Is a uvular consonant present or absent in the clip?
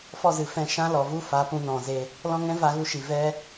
absent